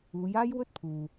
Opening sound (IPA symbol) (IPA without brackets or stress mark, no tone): uː